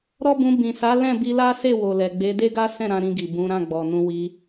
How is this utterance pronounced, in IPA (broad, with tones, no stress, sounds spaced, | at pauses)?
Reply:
ɾ ɔ˦ b ũ˧ b ĩ˨ s a˨˦ l ɛ̃˦˨ b i˧ l a˦ s e˦˨ w o˨ l ɛ˨ ɡ͡b e˨˦ d e˦ ɡ a˦ s ɛ̃˦˨ ɾ ã˨˦ ɾ ĩ˧ ɡ i˨ b ũ˨˦ ɾ ã˦˨ ɡ͡b ɔ˨ n ũ˧ w i˧